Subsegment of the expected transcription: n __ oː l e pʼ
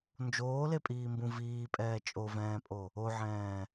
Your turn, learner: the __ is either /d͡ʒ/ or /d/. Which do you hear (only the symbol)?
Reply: d͡ʒ